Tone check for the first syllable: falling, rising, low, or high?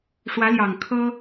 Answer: rising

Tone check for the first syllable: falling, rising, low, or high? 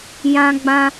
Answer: high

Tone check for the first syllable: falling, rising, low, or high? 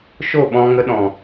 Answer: falling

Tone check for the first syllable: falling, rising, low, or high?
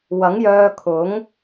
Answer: rising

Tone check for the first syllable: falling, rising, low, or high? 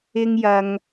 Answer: high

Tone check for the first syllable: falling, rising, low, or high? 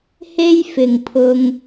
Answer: high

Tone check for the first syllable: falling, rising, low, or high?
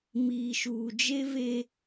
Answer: low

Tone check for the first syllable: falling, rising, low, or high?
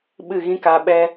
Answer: falling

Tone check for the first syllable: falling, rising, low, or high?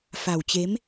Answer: low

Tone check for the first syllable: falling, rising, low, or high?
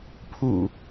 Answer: low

